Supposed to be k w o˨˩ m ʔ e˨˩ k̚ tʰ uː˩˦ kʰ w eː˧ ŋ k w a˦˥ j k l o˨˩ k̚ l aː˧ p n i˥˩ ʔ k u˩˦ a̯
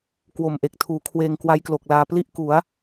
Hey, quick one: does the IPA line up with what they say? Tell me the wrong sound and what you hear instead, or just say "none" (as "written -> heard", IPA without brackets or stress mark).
n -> l